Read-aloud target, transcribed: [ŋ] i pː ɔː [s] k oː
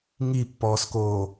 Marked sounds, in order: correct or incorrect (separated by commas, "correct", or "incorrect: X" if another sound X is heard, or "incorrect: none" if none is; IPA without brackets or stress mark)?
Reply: correct, correct